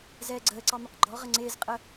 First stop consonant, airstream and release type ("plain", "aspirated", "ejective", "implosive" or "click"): click